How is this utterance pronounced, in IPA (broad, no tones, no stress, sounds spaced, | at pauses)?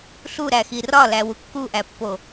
ɬ u ɾ æ x i r ɒ l æ w u kː u ʔ æ pː o